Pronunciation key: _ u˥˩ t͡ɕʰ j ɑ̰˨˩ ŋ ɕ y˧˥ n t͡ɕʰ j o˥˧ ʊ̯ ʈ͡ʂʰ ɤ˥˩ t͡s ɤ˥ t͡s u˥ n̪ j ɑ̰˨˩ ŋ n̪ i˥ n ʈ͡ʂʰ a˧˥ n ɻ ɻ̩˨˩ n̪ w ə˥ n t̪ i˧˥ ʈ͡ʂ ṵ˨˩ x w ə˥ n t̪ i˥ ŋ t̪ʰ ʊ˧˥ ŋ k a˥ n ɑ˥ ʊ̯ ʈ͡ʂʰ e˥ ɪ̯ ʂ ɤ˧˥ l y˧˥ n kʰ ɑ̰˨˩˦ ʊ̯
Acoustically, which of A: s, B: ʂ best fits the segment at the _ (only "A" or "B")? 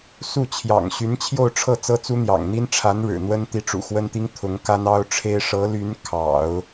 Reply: A